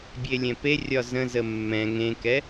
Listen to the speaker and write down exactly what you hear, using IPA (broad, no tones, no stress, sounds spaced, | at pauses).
bʲ e lʲ ɛ̃ p e rʲ ɒ z ə̃ z ə mː ɛ̃ ŋ ẽ k ɛ